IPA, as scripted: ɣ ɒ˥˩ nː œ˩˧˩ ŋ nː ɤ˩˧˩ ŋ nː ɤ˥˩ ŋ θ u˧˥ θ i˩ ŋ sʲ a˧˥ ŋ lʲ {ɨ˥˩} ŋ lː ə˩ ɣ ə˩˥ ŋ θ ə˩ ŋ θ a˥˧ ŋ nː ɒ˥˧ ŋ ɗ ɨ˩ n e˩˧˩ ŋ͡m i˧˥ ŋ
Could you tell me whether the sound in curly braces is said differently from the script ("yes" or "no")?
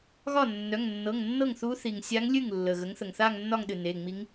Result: no